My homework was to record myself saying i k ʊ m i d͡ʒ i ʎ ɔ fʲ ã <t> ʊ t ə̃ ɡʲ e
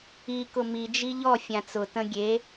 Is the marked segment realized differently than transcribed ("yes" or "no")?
yes